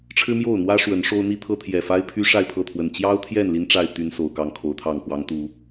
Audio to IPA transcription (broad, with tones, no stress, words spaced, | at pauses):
ʈ͡ʂʰɻ̩˦mjo˥˨ʊ̯n̪wä˦ ʂwə˨˦nʂo˦ʊ̯n̪i˦t̪ʰɤ˦ t̪ʰjɛ˨˩fa˦ɪ̯pʰy˦ ʂa˥˨ɪ̯pʰɤ˥˨t̪ʰwə˨˩n t͡ɕjɑ˦ʊ̯t̪ʰjɛ˥˨n li˦nʈ͡ʂa˥˨ɪ̯t̪y˨˦n so˨˩ʊ̯kɑ˥˨ŋkʰo˨˦ʊ̯t̪ʰɑ˥˨ŋ pwɑ˨˦ŋt̪u˨˦